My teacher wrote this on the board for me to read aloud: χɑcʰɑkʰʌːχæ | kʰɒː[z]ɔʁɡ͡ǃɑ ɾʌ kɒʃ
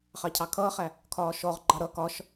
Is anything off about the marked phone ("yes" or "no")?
yes